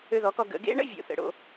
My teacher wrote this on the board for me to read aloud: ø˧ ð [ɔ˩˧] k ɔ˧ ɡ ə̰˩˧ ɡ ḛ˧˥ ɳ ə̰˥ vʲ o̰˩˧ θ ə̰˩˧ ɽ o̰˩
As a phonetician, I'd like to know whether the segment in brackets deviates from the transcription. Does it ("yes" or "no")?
no